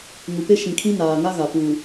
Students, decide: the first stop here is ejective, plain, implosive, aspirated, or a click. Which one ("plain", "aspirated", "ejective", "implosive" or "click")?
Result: plain